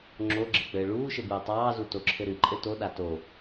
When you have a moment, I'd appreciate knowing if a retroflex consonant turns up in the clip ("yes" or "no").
yes